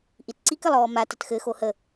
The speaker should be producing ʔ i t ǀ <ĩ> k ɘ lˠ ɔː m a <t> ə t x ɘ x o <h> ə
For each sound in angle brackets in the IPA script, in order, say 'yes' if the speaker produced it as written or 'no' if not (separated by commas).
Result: no, yes, yes